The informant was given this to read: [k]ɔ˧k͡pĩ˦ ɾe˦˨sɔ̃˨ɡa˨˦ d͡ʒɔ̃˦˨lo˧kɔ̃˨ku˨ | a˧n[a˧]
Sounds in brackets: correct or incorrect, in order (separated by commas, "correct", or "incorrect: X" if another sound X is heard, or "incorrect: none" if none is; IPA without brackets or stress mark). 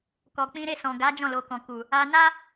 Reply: correct, incorrect: a˦